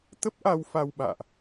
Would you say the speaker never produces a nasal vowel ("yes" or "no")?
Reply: yes